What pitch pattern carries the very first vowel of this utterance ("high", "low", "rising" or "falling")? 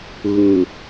low